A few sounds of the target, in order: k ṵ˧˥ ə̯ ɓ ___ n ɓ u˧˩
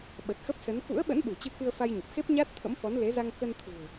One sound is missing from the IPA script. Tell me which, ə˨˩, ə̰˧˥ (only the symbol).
ə̰˧˥